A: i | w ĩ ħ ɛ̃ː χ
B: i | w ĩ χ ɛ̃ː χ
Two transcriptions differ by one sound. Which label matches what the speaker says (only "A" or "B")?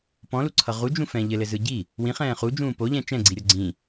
B